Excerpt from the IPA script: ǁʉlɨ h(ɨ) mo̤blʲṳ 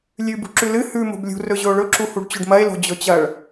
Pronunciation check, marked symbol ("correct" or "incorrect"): incorrect